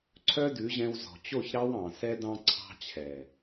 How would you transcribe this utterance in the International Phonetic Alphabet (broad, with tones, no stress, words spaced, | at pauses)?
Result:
ǀʰœ˦dʉ˨˦ʑɛ̃˧w zɔ̤˨t͡ɕo˦˨ç ɾɑ˦wɑ̃˨sɛ˦ dɑ̃˧ǀʰɑ̤˧t͡ɕʰɛ˨